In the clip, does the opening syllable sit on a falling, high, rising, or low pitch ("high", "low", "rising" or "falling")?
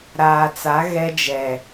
low